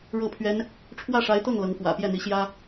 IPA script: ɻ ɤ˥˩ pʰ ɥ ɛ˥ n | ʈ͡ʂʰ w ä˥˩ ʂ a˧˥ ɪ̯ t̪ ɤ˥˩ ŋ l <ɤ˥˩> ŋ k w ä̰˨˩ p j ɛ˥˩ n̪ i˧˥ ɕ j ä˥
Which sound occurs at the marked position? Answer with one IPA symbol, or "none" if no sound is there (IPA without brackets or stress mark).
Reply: ɤ˧˥